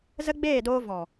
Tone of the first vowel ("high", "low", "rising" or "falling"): high